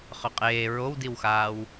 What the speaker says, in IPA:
χœqʼeː ɹowdiwxaːw

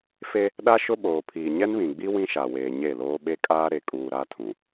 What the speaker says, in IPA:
fe˦ | ɗa˦ʃʊ˦ɓoː˨pʰiː˨ ɲɛ˦nβĩ˨ɡ͡bi˦ wĩ˦ʃa˨weː˨ ɲe˦˨loː˦ ɓe˦kʼaː˦ ɾe˨kʼuː˨ ɾa˦tʰũ˨

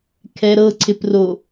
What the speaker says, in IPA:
kʰɛɾɤ ǀʰɪpro

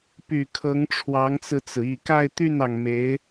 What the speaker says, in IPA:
py˨˩ kʰɤ˧˥ŋʈ͡ʂʰwɑ˧˥ŋt͡sɹ̩˧t͡sɹ̩˩ i˨˩ka˥˧ɪ̯t̪y˥˩nɑ˩ŋ me˧˥ɪ̯

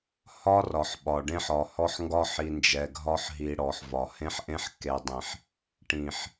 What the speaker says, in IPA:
hɒ˦ rɒ˨ħɓɒ˨ɖẽ˦ħɒ˨ hɔ˦ħŋɡɒ˦ħi˨ nd͡ʒɛ˨ɡʱɒ˦ħ ɦi˨ ɽɔ˨ħvɒ˨ hẽ˦ħʔẽ˦ħkːe˨dˤĩ˨ħ | ʈĩ˨ħ

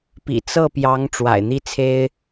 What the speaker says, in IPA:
pḭ˨˩t͡sɤ˥˩pjɑ˧˥ŋ ʈ͡ʂwa̰˨˩ɪ̯n̪i˥˩t͡sʰe˥ɪ̯

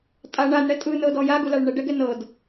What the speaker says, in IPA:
tʼa ɳanɽɛ tʼɯnɤdɔ jaɡulaɭ ɳɛɖɛɡɛ nɤd

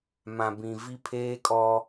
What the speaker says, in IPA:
mã˨bĩ˨vi˦ pʰeː˦kʼɔ˦

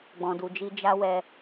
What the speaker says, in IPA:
ɡ͡bɔ̃˨du˨d͡ʒi˧ d͡ʒa˦ wɛ˧

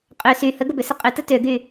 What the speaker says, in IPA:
qʼø sy həɡəbʏsə qʼʏtə tøɡy

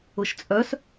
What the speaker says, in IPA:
ʊʃt͡sʼœs

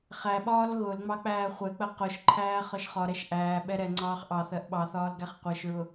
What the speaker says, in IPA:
χæɓɒːl ɣʊlŋ͡mɑ k͡pæːχʷɛk͡pɜ qʊʃǃʰæː χɒʃχɒɾɛʃ ʔæː ɓɛɾɛŋ͡ǀɑːχ ʔɑθɜʔ ɓɑθɒːl ɡæχqʷɜʃɹʊ

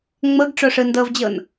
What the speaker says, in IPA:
ŋ͡mɤɡʈ͡ʂo ʂɯndɤvd͡ʑɤn

